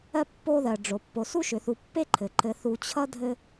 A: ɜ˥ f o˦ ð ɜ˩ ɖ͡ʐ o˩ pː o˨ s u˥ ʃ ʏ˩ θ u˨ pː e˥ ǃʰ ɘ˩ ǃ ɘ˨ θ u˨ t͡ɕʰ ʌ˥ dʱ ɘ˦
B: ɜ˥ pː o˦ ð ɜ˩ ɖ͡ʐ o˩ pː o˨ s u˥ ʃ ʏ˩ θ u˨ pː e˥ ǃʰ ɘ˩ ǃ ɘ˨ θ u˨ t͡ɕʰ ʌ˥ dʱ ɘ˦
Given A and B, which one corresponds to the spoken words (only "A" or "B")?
B